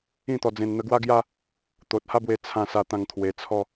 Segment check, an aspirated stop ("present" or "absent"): present